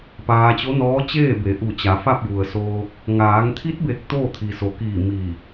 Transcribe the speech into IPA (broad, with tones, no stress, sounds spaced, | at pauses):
p aː˧ t͡ɕ o˧˥ n ɔː˧˥ t͡ɕ eː˥˨ b e˩˧ ʔ u˧˩ t͡ɕ a˩˧ f a˥˨ p̚ j u˩ ə̯ s oː˧ k̚ | ŋ aː˩˧ ŋ t̪ʰ i˧˥ t̚ b e˧˩ k̚ t̪ oː˥˨ t̪ʰ i˩ s o˩ k iː˧˩ m i˧˩